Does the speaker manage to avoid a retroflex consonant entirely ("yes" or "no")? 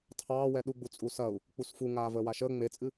yes